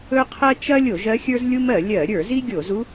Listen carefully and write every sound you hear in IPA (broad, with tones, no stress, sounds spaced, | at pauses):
ɵ˥ qʰ ɜ˥ t͡ʃ ɐ˥ lʲ o˧˩˧ ʒ ɜ˥ xʲ ə˞˥ z lʲ u˥ m ɜ˧˩˧ lʲ ɜ˧˩˧ ɾʲ ə˞˧˩˧ z i˥ ɡʲ o˧˩˧ z u˥